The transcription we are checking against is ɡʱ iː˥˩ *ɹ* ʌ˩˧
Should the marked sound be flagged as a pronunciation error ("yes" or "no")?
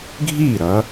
yes